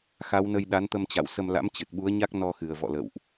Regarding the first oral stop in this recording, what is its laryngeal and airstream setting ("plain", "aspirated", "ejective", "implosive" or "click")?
implosive